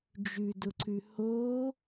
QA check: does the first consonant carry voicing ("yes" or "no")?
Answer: yes